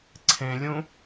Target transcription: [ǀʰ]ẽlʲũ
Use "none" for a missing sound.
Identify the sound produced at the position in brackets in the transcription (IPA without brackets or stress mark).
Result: ǀʰ